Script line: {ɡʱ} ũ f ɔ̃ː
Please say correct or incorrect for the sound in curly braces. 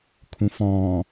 incorrect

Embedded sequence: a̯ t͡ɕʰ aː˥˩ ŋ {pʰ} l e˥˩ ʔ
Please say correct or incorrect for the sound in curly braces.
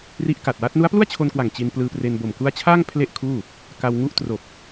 correct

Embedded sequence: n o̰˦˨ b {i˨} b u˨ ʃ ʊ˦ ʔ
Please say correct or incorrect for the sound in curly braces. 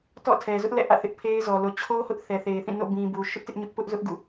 incorrect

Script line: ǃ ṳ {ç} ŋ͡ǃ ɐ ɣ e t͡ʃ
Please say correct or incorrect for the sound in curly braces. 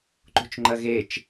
incorrect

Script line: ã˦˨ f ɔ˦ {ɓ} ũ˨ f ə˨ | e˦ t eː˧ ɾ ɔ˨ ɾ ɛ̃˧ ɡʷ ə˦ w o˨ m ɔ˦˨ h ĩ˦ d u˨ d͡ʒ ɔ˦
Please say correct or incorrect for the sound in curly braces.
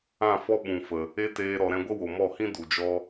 correct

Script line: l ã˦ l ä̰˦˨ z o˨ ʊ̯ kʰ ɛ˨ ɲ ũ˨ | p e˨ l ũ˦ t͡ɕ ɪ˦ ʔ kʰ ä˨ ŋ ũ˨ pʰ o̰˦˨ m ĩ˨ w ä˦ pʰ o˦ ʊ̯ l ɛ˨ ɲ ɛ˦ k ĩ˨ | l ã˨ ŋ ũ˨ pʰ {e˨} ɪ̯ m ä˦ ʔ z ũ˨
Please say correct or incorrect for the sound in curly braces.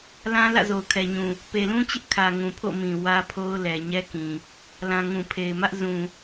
correct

